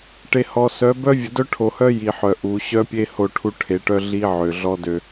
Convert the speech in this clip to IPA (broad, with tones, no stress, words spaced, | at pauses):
ʈe˨hɔ˨sœ˨˦ bœ˦vʲə˨ dœ˦ʈʰo˨hœ˦ ji˨ħœ˨ ʔu˨˦ ɕœ˦pʲe˦ ho˦˨ʈʰu˦ʈʰe˨˦ʈœ˦ ɮi˦ ʕø˨ɮɔ˦dø˨